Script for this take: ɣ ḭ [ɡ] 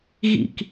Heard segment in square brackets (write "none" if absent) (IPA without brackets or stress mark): k